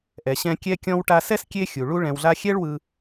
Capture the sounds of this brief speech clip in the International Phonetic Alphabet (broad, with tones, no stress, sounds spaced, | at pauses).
ʔ ɛ˩ ɕ ɛ̃˧ kʲ ɛ˧ kʲ ɔ̃˧ w ʈ a˧ s ɛ˥ s kʲ e˥ xʲ u˩ ɭ u˥ ɭ ɛ̃˧ w ɮ a˥ xʲ ɛ˥ ɭ w ɯ˧